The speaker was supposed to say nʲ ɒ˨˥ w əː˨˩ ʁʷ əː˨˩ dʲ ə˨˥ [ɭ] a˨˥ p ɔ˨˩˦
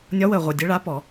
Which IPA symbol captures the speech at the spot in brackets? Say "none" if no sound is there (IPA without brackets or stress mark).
ɭ